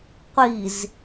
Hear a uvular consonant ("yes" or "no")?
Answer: yes